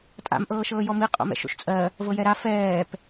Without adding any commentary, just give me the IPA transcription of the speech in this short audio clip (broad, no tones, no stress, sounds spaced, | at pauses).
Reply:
tʼ a̰ m ʔ ɤː ʃ ɤː j ɔ m i qʼ o̰ m ɛ̰ ʃ o̰ ʃ t͡sʼ ɜ | v ɤ j ɛ ɾ a f ɛː p